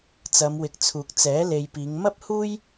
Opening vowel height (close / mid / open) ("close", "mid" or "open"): open